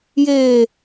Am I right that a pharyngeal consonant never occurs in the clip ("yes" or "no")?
yes